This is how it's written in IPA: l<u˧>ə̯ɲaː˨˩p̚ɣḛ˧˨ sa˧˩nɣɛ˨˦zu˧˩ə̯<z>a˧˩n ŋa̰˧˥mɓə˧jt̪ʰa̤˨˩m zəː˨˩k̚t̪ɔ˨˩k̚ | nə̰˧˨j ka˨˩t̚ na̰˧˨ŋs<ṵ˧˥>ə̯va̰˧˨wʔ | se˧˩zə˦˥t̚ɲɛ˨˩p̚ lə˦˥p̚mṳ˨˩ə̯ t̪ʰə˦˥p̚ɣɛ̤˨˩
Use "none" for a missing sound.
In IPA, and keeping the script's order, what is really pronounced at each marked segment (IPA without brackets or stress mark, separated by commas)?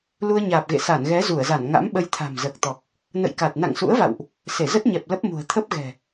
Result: u˧, z, ṵ˧˥